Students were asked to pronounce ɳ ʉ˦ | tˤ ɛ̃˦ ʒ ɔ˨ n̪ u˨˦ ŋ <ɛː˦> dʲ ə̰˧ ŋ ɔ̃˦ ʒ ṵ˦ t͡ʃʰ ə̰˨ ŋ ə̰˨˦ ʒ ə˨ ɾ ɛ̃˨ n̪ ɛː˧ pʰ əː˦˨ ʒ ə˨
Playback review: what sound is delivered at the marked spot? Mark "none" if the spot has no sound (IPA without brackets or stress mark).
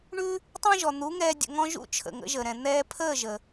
ɛː˧